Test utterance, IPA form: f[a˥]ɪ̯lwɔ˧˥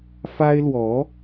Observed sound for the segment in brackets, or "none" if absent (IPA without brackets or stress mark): a˥